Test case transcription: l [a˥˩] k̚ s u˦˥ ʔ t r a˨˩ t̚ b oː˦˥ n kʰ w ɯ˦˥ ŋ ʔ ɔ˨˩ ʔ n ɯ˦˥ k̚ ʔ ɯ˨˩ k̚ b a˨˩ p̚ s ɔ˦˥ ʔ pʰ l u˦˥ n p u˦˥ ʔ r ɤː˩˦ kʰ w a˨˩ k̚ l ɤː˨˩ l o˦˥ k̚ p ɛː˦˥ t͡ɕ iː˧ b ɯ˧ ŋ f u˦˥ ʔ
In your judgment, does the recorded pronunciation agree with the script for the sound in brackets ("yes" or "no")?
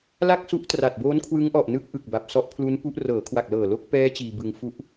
yes